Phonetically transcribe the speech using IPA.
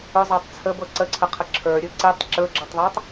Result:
ɵ zˤ a tˤ t͡sʰ ə b ɤ ǀ ə ǀʰ ə qʰ ə ǁʰ ə˞ ɾʲ ɵ ǀ i tˤ ǁ ɵ ɡ͡ǁ ɤ tˤ ðˤ ə˞ tˤ

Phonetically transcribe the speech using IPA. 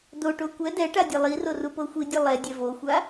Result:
d o ʈ o kʷ ɛ d ɛ ʈ a dʲ ɛ lˠ i r o r u p o xʷ i dʲ ɤ lˠ ɛ dʲ ɛ v o xʷ a

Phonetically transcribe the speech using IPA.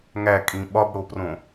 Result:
ŋ æ kʼ ĩ ɓ ɒ b ɽ o p r õ

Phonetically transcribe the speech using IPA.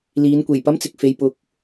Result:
l iː˨˧ n kʷ e˨˩ j p ɐ˥ m t͡s ɪ˨ k̚ f e˨ j p ʊ˨˥ k̚

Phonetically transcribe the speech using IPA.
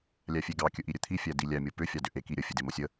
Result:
lʲ æ fʲ e ɡ ɑ kʲ ɵ ʔ i ɾʲ ɵ t̪ʰ i fʲ æ d i lʲ æ mʲ o p ʏ fʲ ɑ d ʏ ʔ e k i ɾʲ ə fʲ e d e m o sʲ ə

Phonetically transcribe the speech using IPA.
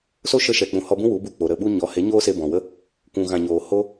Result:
s o˦ ʃ ə˧ ʃ ɛ˨ k͡p ũ˨ h ɔ˧ b ũ˦ w u˨˦ b u˦˨ k͡p o˨ ɾ ə˦˨ ɓ u˦ ɲ ɔ˨˦ h e˨˦ ɲ oː˦ s e˧ b ɔ̃˨ w ə˦ | kʷ ũ˨ ɣ ã˨ ɲ oː˨ h o˦

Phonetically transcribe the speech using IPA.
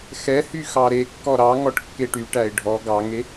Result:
x ɛ h y x ɑ ɾ e kː ɔ ɾ ɑ ŋ ɔ ʈ kː e ʈ y ʈ æ ɪ̯ ɖʱ ɔ ɡ ɑ ŋ e

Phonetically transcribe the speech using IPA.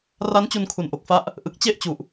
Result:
r a˦˥ n t͡ɕ u˧ n kʰ u˨˩ n ʔ o˨˩ k̚ f a˦˥ ʔ | ʔ ɯ˨˩ k̚ t͡ɕ e˥˩ ʔ t͡ɕ u˨˩ ʔ

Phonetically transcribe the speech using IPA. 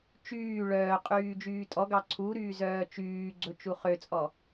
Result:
t͡ʃ yː ɭ œː qʼ yː d͡ʒ yː tʼ ɔ ɡ ɑ ǀʰ u ɾ yː z œː t͡ʃ yː ɡ͡ǀ ɵ t͡ʃ u χ ø t͡sʼ ɔ

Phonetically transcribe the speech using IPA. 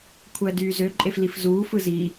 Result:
kʷʰ æ d yː z ø ǃʼ e f l i f z uː f ɯ z i

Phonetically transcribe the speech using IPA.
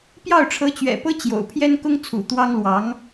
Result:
p j ɑ˥˩ ʊ̯ ʈ͡ʂʰ ɤ˧˥ t͡ɕ ɥ ɛ̰˨˩ p ɤ˥ t͡ɕ j o̰˨˩ ʊ̯ pʰ j ɛ˥ n k ʊ˥ ŋ t͡sʰ ṵ˨˩ t̪ w ɑ˥ ŋ l w ɑ˧˥ ŋ

